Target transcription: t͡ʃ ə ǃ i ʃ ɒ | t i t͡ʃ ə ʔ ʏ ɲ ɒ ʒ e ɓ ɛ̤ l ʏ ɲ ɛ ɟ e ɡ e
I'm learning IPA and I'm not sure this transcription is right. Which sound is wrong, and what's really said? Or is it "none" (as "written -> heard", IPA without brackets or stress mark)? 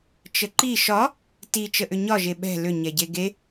none